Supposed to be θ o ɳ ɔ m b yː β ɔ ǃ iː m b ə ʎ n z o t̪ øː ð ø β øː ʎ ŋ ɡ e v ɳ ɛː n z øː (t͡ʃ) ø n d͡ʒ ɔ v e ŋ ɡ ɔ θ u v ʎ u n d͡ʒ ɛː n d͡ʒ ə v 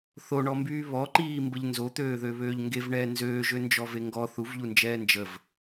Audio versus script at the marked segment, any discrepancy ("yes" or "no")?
yes